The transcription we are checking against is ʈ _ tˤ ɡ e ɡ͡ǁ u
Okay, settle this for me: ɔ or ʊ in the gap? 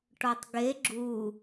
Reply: ɔ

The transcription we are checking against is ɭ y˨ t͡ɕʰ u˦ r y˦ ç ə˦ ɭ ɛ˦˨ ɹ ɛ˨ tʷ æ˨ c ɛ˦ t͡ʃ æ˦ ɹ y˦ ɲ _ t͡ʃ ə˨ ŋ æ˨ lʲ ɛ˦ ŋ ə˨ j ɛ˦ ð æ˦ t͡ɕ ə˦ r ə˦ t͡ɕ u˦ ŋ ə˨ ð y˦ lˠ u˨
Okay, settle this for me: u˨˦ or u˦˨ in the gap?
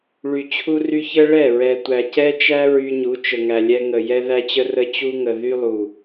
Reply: u˨˦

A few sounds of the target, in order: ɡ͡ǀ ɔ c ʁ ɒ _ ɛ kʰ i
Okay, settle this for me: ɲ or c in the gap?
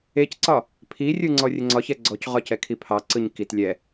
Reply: c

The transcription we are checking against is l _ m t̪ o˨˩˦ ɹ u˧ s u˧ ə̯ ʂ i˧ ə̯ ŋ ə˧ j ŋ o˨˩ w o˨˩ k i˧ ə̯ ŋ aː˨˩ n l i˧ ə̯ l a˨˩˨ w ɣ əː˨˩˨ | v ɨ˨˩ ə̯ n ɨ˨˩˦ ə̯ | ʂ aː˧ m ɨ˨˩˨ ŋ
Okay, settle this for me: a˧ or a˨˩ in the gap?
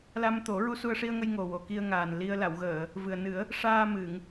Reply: a˧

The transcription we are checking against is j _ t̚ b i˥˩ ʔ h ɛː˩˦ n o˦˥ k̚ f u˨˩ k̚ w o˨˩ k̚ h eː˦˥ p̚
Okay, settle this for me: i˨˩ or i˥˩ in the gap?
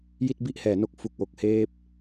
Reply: i˥˩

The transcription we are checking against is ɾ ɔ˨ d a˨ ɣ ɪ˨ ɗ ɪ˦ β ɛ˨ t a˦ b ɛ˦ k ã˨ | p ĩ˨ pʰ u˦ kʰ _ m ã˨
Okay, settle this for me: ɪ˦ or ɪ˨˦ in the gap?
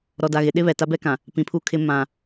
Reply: ɪ˦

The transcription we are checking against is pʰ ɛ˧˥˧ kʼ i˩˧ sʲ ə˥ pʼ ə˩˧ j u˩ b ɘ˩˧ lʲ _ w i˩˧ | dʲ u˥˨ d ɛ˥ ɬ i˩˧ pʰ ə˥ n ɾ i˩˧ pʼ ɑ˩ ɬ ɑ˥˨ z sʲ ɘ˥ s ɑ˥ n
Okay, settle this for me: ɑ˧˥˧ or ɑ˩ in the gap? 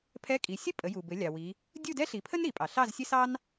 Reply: ɑ˩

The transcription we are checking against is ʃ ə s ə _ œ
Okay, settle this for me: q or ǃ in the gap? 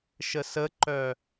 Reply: ǃ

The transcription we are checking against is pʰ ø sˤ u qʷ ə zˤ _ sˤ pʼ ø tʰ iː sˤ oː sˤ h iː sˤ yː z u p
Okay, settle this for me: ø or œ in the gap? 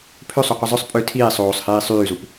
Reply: œ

